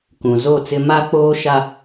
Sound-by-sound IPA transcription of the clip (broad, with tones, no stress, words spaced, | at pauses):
kũ˨zo˦˨t͡sɪ˦ ma˦k͡poː˦ʃa˦